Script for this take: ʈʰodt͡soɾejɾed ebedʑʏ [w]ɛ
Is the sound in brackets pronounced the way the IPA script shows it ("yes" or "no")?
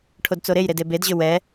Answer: yes